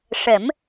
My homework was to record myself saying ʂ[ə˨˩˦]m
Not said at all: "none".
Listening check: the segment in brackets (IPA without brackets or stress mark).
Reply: ə˨˩˦